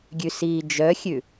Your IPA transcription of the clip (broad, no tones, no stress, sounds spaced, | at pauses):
ɡʲ ʉ s iː d͡ʒ œ xʲ ʉ